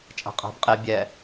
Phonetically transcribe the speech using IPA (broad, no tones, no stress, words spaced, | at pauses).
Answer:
t͡ʃʼa̤qʼa̤b qʼe bʲɛ